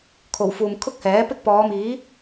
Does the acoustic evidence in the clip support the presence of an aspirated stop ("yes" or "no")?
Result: yes